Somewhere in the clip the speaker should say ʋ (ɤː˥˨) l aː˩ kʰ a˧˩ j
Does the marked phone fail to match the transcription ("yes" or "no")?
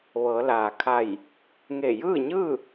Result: yes